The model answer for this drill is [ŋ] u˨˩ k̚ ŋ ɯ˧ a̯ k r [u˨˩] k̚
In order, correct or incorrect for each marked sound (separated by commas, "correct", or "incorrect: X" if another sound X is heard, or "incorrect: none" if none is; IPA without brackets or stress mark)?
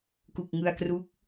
incorrect: k, incorrect: u˦˥